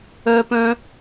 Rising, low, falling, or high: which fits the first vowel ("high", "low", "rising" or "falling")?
high